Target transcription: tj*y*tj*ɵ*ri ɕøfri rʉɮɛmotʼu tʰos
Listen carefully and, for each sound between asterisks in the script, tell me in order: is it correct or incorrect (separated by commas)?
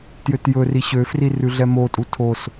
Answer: incorrect, correct